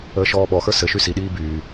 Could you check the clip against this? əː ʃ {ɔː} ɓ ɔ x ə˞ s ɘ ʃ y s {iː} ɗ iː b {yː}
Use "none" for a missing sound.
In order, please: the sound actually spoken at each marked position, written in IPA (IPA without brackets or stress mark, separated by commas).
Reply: ɔː, i, yː